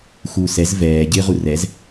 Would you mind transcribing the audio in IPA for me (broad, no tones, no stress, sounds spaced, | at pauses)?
x uː s ɛ z v ɛː ɟ ɪː ʁ u r ɛ z